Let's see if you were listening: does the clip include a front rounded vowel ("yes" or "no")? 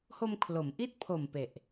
no